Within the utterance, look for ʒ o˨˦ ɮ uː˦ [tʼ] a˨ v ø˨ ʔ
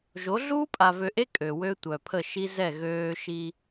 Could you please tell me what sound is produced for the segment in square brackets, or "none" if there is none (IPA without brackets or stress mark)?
pʼ